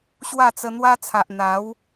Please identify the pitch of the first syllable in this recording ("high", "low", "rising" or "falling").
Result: falling